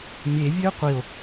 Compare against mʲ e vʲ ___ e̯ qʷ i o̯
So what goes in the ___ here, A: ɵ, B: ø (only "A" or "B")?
B